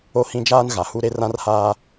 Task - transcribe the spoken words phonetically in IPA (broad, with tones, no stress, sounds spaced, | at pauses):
o˦ h ĩ˦ d͡ʒ aː˦ n ɣ a˨ h u˦ ɾ e˦ r ã˦ r h aː˦